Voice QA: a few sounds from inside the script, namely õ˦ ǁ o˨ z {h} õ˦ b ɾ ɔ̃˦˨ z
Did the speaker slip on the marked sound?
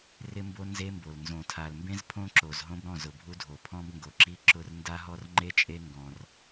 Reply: yes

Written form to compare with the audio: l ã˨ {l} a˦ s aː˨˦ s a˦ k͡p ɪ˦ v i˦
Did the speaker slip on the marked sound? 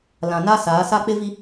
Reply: yes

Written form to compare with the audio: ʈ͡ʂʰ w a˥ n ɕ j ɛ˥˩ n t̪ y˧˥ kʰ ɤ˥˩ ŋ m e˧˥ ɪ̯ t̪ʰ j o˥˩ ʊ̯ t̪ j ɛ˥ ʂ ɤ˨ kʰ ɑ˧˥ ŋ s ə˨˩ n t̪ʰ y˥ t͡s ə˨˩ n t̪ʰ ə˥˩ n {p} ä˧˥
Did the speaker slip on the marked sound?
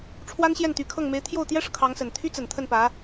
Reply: no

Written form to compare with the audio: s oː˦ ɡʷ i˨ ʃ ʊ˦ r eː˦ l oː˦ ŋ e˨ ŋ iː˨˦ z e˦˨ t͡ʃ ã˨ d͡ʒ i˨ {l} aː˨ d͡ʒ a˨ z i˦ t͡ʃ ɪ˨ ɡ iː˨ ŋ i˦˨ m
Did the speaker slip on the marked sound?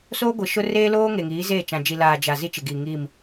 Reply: no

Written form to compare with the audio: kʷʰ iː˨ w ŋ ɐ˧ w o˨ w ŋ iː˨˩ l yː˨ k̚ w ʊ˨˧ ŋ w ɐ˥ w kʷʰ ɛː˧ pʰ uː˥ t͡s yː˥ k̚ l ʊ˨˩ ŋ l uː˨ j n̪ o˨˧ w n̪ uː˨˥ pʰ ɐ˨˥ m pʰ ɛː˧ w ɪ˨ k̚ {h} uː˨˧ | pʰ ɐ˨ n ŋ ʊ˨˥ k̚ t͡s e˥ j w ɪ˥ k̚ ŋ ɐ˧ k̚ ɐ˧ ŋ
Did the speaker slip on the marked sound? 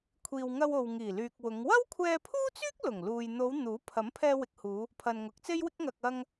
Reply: no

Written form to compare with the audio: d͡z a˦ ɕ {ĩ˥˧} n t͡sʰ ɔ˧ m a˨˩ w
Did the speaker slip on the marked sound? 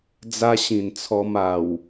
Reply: yes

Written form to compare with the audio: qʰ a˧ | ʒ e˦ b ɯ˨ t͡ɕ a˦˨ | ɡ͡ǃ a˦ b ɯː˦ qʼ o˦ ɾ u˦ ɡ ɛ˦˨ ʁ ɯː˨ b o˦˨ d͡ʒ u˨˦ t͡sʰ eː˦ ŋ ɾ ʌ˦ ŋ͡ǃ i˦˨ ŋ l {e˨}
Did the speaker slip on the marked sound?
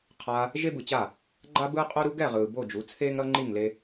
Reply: yes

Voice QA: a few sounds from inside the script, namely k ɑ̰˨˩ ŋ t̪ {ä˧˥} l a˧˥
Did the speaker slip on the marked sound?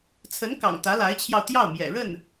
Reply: no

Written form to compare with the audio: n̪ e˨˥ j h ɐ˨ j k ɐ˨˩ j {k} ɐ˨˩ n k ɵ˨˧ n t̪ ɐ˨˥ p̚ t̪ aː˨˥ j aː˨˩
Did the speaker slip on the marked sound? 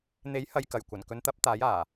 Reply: yes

